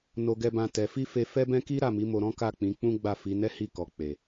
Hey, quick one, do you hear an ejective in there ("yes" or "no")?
no